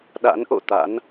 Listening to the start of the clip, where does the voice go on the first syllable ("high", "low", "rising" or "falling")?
rising